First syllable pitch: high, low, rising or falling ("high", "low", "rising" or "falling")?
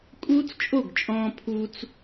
high